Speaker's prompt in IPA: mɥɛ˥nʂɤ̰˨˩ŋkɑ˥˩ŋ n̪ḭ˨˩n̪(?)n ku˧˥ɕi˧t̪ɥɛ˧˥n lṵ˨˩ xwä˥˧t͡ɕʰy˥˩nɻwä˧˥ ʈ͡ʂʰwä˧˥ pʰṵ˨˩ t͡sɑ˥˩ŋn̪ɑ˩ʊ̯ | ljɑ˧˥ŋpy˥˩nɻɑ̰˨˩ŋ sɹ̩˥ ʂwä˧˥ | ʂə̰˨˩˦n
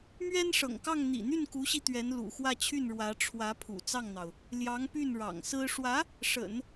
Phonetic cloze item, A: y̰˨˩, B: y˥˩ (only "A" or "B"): B